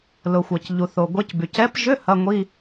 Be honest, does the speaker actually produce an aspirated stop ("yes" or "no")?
no